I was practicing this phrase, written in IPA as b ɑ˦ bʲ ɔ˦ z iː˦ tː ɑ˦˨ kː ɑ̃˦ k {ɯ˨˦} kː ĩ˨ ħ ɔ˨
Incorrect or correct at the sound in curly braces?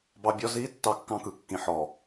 correct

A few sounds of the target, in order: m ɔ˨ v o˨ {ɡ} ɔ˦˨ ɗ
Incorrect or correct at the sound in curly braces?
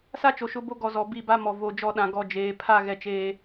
incorrect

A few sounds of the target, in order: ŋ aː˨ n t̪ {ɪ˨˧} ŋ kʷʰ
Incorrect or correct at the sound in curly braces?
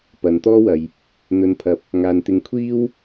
correct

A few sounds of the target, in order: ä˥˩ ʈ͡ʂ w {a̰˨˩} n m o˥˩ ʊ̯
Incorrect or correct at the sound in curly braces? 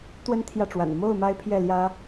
correct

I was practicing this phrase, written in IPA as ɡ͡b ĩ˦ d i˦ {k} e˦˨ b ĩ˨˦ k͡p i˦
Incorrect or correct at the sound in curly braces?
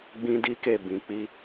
correct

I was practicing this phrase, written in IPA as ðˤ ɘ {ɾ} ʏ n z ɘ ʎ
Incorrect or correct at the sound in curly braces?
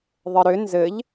correct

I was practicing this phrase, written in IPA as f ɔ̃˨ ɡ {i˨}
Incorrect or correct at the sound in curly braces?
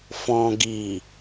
correct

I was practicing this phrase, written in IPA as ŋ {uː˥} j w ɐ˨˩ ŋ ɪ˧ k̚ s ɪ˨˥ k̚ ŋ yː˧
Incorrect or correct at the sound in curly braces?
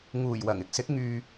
incorrect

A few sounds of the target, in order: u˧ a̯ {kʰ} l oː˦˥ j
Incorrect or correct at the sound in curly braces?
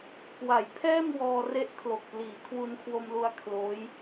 correct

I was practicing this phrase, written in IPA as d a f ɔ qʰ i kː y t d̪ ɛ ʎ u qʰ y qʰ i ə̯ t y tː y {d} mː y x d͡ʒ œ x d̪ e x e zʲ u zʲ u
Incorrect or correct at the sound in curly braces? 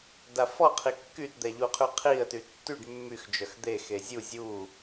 incorrect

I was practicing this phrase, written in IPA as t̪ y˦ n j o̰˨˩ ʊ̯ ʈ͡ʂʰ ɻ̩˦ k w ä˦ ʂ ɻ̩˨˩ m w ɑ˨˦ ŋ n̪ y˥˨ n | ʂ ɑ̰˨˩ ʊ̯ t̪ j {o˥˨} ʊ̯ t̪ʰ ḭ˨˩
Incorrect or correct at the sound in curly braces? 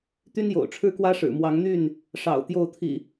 correct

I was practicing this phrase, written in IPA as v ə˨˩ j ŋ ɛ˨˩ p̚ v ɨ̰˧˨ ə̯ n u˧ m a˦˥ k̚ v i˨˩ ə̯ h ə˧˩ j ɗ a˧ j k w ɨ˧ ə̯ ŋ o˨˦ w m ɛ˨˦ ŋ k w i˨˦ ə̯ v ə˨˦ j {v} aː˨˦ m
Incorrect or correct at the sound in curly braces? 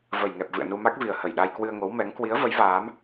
correct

